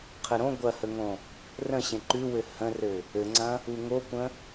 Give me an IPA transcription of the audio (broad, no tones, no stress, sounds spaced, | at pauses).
qʰ ə ɾ õ ɡʷ ɐ h ə ŋ õ | r ə̃ ɕ ẽ ǃ ʉ w ɘ h ə̃ r ɘ | ɘ ŋ͡ǀ ɐ̃ | u ŋ o kʷ ə̃